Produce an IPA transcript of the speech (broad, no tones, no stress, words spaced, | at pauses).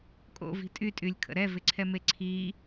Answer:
kʼo̰vi̤ tʼytʼylʲkʰə̰ ɾɛvɪǀʰɛme ǀʰi